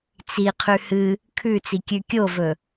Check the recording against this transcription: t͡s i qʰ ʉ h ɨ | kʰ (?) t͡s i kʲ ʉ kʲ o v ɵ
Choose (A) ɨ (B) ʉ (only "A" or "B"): B